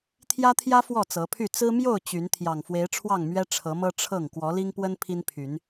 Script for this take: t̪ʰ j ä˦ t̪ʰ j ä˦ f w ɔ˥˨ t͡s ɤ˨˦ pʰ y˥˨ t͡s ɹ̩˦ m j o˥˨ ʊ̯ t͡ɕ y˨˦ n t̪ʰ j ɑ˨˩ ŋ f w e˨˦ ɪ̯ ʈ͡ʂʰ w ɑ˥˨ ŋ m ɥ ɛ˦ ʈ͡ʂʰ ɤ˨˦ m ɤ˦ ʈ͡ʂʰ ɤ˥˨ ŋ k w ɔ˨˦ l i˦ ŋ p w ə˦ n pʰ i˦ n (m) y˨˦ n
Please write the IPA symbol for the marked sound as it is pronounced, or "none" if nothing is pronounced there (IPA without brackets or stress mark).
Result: pʰ